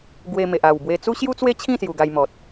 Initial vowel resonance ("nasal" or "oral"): oral